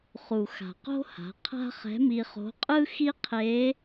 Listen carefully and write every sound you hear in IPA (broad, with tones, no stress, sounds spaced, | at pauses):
χ u˩ x a̤˩ q o̤˥ h a̤˩˧ qʰ a̤˥ χ ɛ̤˧˥ m i˧ χ o̤˧˥ qʼ ɯ˥ x i˥ qʰ e˧˥